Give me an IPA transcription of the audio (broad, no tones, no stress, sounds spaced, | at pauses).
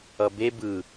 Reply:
ʌ b e b ɯ